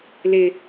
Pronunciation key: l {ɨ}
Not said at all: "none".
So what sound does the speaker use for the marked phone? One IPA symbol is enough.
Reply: ɪ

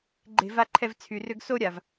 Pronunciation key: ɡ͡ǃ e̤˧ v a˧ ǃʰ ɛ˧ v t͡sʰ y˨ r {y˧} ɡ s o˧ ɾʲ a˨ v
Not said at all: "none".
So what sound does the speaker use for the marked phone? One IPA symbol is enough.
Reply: ʏ˧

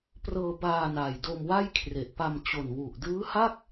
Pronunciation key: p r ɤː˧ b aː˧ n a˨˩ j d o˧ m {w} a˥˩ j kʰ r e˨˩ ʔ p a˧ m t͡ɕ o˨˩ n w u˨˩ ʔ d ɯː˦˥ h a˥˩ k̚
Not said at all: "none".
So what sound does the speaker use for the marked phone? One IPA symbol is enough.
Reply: w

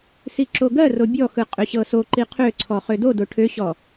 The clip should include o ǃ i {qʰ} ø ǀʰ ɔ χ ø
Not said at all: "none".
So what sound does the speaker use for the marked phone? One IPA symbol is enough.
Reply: qʰ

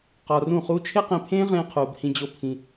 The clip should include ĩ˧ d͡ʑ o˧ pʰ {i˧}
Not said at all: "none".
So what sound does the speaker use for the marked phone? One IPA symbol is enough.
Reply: ĩ˧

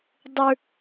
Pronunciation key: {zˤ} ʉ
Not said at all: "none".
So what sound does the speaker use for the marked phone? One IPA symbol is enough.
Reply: dˤ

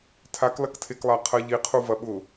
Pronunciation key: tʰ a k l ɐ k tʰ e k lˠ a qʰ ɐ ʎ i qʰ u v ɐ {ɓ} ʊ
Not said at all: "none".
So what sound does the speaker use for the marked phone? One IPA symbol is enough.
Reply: ɓ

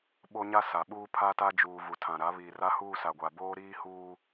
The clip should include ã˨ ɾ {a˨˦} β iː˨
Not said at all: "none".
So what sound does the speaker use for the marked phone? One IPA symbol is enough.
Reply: a˨˦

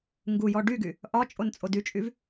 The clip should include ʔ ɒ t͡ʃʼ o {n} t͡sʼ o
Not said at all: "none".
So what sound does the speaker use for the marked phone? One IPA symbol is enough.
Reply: n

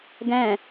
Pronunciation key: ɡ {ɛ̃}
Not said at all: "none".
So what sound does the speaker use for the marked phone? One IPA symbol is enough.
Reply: ɛ̃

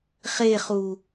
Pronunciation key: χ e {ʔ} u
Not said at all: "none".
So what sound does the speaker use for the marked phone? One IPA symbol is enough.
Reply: χ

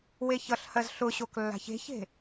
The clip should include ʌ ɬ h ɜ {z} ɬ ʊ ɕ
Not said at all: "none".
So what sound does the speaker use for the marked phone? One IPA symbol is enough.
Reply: z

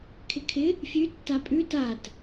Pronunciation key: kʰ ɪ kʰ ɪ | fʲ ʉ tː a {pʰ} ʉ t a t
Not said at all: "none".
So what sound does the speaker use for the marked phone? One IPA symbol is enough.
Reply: pʼ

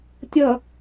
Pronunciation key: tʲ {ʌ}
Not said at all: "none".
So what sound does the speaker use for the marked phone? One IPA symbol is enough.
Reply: ʌ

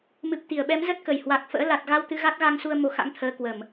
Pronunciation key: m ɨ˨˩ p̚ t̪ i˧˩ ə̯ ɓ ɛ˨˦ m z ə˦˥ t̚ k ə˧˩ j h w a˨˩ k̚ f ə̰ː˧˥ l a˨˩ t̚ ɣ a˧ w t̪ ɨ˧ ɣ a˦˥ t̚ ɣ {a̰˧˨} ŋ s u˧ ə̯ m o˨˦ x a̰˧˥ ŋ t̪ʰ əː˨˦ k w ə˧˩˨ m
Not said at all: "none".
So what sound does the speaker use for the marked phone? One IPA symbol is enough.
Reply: a˧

